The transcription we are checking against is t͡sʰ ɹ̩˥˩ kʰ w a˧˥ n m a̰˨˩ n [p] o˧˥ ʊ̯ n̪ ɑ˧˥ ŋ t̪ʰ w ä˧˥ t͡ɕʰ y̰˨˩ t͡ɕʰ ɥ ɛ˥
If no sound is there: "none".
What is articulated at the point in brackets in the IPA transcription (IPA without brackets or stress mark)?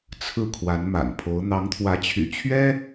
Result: pʰ